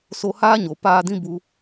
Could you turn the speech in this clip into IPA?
s o˧ h aː˦ ɲ o˨ p aː˧ d ĩ˦ b u˧

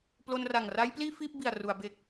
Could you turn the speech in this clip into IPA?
p l o˧ n r a˨˩ ŋ r a˦˥ j p l iː˥˩ f iː˥˩ p̚ b i˨˩ a̯ r u˩˦ a̯ b e˨˩ k̚

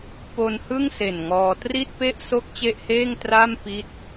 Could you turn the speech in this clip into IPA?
p o˧ n h ɯ˥˩ ŋ s e˨˩ n ŋ ɔː˧ t r i˥˩ t̚ p e˥˩ ʔ s o˥˩ k̚ t͡ɕ e˥˩ ʔ h eː˥˩ ŋ t r a˥˩ m p i˦˥ t̚

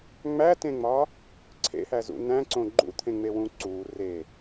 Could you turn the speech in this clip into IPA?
ŋ͡m æ t ẽ ŋ͡m ɒː | ǀʰ ḛ h æ z ṵ n̪ æ̃ ǀ õ ɡ͡ǃ ṵ t̪ʰ ẽ ŋ͡m e w ũ ǀ uː r e

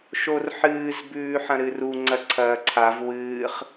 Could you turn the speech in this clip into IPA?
ʃ o r ħ ɨː z b ʉː ħ ɐ̃ ɾ ɨ r u ŋ͡ǀ ɐ ǀʰ ɐː ǀʰ a v w ɨː χ

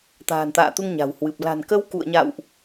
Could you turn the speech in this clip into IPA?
t̪ a̤ː˨˩ n t̪ a̰ː˧˨ t̪ u˧ ŋ ɲ a̤˨˩ w h w ɨ˨˩ p̚ l a̤˨˩ n k ə˧ w k ṵ˧˨ ə̯ ɲ a̰˧˨ w ʔ

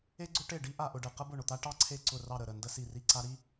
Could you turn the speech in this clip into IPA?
e˥ ɡ͡ǀ ʊ˥ ʈ e˥˨ ɖ i˥ ʔ a˥˨ ʔ ʊ˥˨ ɖ e˥˨ q ə˥ b ʊ˥˨ ɳ ʊ˥˨ t̪ a˥ ʈ ɑ˥ ǀʰ e˥˨ ǀ ʊ˥˨ r ɑ˥˨ ɾ ə˥˨ ɾ ə˥˨ n d ə˥ s i˥˨ r i˥˨ ǀ a˥ ɾ i˥

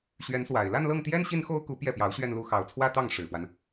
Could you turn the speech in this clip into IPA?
ɕ ɥ ɛ˧˥ n s w a˨˩ ɪ̯ l a˥˧ n l ɤ˥˩ ŋ t̪ j ɛ˥ n ɕ i˥ n x o˥ ʊ̯ k u˧˥ p j ɛ˥˩ p j ɑ˧˥ ʊ̯ ɕ ɥ ɛ˥˧ n l u˥˩ x ɑ˧˥ ʊ̯ t͡sʰ w ä˥ t̪ ɑ˥˩ ŋ ʂ ɻ̩˨˩ f w a˦ n

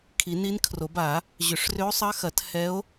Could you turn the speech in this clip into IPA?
kʰ i˨˩˦ n i˧˥ n kʰ r o˨˩˦ b a˨˩˦ | ʑ ʏ˨˩˦ ʂ r ʏ˧˥ o̯ sˤ ɐ˧˥ x ɐ˨˩˦ t h ɛ˧˥ o̯

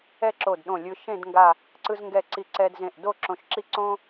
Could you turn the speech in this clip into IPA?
ɛ˥˧ ǁ o˧˩ d ɗ õ˧˩ lʲ ɯ˧ ʃ ẽ˥˧ d ŋ ɡ a˧˩ | ǀ ɯ˧ z ŋ ɡ ɛ˧˩ ǀ i˧˩ ǀ ɛ˧ d z ẽ˧˩ ʔ d o˥˧ ǁ õ˧˩ ʃ ǁ i˥˧ ǀ õ˥

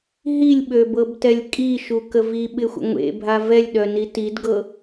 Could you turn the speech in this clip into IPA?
ɦ i lʲ ɓ ø b ɤ b t ɛ lʲ kʼ i ʃ u k ə v i ɓ ɪ xʷ ə̰ ŋʷ ḛ bʱ a v ɛ lʲ ɗ œ n i t i d ɡ ɤ

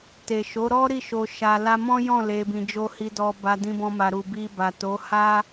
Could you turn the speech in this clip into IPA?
t e˨ ʃ o˨˦ ɾ ɔ˦ ɾ i˦˨ ʃ o˨ ʃ a˨ l a˧ m ɔ̃˦ j ɔ̃˦˨ l e˧ b ĩ˧ d͡ʒ o˦ h i˧ d ɔ˧ b a˧ d ĩ˧ b ɔ̃˧ m a˨ ɾ u˨ b i˧ b a˨ t o˨˦ h a˦

